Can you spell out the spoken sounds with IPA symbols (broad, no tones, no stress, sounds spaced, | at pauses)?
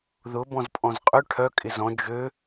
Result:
ð ʊ b ɔ̃ z pʼ ɔ̃ z qʼ ø ʈʰ œ kʼ ɪ z ɔ̃ d͡ʒ ø